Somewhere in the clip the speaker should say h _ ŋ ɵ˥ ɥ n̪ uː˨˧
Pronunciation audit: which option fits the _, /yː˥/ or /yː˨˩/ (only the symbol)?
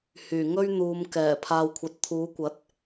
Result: yː˨˩